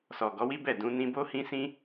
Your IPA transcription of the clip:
sɔ˨ɡɔ˨˦wi˦bɛ˦˨ dũ˨˦nĩ˦ bo˦hĩ˦sĩ˦

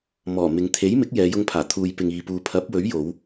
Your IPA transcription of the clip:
mɔː˨˩ mɪ˨ŋt̪ʰe˨˥jmɪ˨˥k̚ jɛː˨˧jʊ˧ŋpʰaː˨˩ t̪ʰuː˨jpɪ˨ŋiː˨puː˨ pʰɐ˨˥p̚wɵ˨˥ɥjo˨˧w

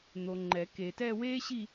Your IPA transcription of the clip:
n̪o˨ŋ͡ǃɛ˨˩˦ke˨tɛ˥˧ weː˥ɕi˥˧

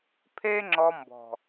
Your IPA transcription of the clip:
pʰe˦ŋ͡ǁɔ˧mbɔ̤˨

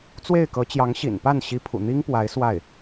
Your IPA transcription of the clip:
t͡swe˥˩ɪ̯kɤ˧˥ t͡ɕjɑ˧˥ŋɕḭ˨˩npa˥˩n ɕi˧˥pʰṵ˨˩n̪i˥ŋpwa˧˥ɪ̯ swa˥˩ɪ̯

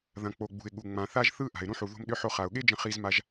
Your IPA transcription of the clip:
ðɐ̃˩ k͡po˩ ɡ͡bṳ˩ɪ̯ɠu˩ ŋ͡mã˩ θa˧ʒ θɯ˥ ʔa̤˩ɪ̯ ɾũ˧ħu˩ ðo̤˧mɗʏ˧ħo˧ χa˩ʊ̯ɠe˥d͡ʒə̃˧ χi˧zma˧ʒ

